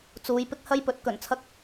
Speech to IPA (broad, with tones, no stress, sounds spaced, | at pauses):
t͡s uː˨˥ j p ɪ˥ k̚ h ɐ˥ j p ɵ˨˥ t̚ k ɵ˨˩ n t͡sʰ ɐ˥ k̚